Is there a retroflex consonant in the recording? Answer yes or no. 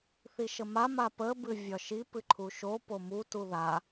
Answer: no